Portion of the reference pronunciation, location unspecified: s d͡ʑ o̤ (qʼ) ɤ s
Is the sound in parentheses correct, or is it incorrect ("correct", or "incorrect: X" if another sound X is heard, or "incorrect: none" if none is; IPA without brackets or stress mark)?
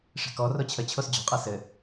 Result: correct